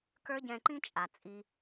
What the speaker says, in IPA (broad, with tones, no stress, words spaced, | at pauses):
kə˞˦ɟɛ̃˧ǃĩ˦t͡ʃʼa˨ t͡sʼi˧